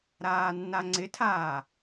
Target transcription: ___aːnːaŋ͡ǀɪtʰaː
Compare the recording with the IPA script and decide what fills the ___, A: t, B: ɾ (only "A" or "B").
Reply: B